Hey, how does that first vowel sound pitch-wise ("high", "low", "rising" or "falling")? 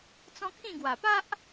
high